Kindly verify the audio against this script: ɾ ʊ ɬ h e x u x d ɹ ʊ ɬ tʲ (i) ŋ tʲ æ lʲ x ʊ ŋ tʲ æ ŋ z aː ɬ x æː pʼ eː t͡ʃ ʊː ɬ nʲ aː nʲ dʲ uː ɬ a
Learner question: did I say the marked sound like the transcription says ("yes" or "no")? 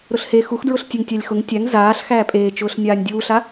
no